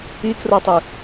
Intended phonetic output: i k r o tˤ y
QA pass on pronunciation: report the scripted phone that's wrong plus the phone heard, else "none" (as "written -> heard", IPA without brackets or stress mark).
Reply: none